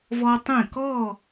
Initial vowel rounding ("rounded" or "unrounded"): rounded